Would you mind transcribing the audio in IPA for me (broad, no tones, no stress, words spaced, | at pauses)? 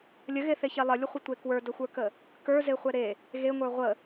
lʲəɣeθeçe lˠəlʲəχʷətʷe kwə˞dəxʷə˞kə | kə˞zeχʷɛ ɾe | ɣeŋʷə˞ ʁʷə